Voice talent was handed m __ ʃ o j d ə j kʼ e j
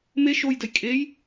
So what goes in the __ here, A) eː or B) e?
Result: B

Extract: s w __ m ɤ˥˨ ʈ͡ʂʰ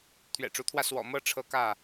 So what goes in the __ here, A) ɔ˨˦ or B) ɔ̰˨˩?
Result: B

